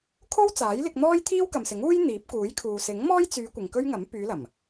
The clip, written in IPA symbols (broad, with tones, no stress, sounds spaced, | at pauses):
kʰ o˥ w t͡s aː˨˥ j l ɪ˧ k̚ n̪ ɔː˥ j t̪ʰ iː˥ w k ɐ˨ m s ɪ˨˥ ŋ uː˥ j n̪ iː˨˥ p̚ k uː˨˥ j kʰ uː˨ s ɪ˨˥ ŋ m ɔː˥ j t͡s yː˨˧ kʷ ɪ˨ ŋ k ɵ˥ ɥ ŋ ɐ˨˥ m p yː˨˧ l ɐ˨˩ m